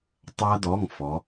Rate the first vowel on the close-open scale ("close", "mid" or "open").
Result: open